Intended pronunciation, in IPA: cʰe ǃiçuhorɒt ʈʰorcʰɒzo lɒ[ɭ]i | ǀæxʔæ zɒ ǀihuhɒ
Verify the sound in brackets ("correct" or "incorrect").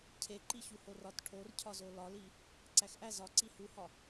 incorrect